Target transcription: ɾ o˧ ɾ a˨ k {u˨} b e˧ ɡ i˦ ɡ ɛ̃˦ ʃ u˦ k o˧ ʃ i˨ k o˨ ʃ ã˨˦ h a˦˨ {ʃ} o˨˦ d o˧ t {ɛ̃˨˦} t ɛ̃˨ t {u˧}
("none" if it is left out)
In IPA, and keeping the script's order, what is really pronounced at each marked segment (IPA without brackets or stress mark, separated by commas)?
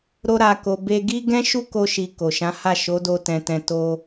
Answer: o˨, ʃ, ɛ̃˨, o˧